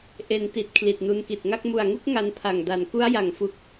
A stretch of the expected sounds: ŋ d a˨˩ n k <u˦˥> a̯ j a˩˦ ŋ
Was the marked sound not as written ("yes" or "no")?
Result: no